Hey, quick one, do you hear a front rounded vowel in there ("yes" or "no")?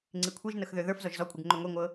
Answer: yes